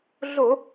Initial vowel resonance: oral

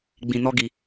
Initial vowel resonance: nasal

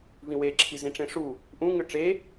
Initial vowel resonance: nasal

